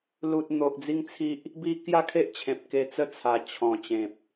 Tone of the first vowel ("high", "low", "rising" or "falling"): low